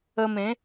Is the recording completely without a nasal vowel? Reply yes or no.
no